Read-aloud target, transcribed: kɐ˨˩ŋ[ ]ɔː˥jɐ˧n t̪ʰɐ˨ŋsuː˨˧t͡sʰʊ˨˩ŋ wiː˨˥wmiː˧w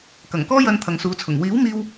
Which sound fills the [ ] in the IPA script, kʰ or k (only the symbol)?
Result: k